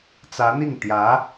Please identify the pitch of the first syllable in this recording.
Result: rising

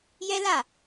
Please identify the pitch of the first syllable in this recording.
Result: high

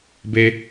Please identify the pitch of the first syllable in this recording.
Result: high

